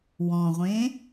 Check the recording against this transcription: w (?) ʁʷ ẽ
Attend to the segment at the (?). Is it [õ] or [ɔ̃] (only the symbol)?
ɔ̃